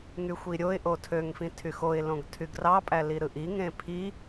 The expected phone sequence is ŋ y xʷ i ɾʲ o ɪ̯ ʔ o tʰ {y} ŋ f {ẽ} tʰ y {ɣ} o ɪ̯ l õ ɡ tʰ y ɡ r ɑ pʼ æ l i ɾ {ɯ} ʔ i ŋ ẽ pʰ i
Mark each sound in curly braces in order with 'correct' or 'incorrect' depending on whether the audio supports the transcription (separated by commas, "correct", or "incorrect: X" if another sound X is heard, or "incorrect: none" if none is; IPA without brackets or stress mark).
incorrect: ø, incorrect: ĩ, incorrect: x, correct